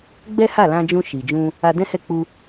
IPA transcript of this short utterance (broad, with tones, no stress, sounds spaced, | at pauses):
ɡ͡b ɛ˦ h a˦˨ l ã˧ d͡ʒ ũ˧ ʃ i˨ d͡ʒ ũ˧ | a˧ d ɛ̃˦ h ɛ˦˨ k͡p u˧